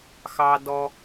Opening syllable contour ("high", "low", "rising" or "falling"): low